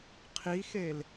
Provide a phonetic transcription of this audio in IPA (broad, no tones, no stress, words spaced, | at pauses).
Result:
qʰixel